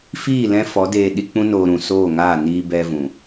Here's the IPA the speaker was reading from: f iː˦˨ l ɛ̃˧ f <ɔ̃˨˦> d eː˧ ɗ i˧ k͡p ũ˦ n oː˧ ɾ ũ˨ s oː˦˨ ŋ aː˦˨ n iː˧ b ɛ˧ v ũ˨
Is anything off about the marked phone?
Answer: yes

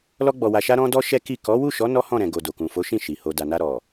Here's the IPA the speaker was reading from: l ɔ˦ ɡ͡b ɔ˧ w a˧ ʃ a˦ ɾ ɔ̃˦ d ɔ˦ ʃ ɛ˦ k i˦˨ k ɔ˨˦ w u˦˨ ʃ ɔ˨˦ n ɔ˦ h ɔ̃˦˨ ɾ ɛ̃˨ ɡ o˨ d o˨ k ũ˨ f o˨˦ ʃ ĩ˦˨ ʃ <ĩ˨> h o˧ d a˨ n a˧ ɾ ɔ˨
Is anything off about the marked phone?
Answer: yes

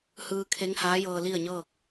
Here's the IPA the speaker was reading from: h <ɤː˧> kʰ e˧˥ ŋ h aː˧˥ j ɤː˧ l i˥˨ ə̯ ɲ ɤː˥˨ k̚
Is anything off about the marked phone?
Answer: yes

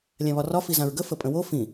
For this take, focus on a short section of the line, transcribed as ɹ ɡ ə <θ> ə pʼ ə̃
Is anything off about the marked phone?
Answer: yes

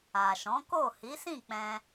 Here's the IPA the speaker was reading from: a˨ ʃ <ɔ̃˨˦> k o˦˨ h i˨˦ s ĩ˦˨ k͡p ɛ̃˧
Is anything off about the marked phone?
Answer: no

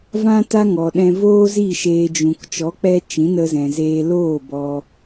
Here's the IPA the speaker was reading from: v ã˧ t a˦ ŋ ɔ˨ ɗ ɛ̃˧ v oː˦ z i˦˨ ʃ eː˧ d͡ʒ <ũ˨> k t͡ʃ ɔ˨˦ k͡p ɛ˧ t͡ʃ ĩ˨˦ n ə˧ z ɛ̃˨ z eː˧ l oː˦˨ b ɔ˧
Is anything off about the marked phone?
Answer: no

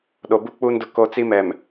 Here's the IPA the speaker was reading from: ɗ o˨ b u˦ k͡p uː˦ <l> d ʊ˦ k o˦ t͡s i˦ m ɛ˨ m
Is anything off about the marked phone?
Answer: yes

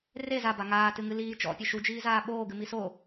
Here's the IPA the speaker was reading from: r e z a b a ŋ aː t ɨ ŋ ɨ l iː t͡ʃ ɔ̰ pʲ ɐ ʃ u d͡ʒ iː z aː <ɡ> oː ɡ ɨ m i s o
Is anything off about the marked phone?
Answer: yes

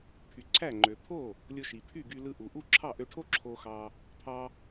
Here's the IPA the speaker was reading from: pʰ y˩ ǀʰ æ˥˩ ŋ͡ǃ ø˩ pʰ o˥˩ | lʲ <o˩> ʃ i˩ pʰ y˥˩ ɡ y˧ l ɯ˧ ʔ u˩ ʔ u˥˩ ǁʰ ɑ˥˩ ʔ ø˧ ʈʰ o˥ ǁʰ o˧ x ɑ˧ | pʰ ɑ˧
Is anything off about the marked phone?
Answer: yes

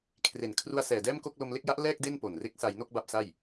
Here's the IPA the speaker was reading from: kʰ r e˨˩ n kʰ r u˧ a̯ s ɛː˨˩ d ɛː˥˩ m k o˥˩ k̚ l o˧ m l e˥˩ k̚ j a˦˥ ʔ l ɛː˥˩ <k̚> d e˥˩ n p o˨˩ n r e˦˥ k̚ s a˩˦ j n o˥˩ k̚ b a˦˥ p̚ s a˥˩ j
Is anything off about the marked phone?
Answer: no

